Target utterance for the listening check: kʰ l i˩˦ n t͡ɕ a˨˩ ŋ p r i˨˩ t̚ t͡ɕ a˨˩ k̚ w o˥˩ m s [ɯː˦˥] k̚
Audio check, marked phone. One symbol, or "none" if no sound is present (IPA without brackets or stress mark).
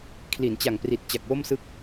ɯ˦˥